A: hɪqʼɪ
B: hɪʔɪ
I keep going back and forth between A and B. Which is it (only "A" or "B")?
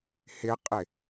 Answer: A